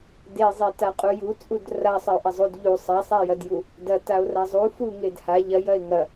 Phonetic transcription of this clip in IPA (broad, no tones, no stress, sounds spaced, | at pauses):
d e zˤ e t a qʼ u j u t͡sʼ u d r a sˤ ɐ o̯ ʔ ɐ zˤ u d ʎ u sˤ a sˤ a j ɐ d j u | d ɐ t a o̯ r a zˤ u f u ŋ e d h a ʎ ɐ j ɐ e̯ ŋ ɐ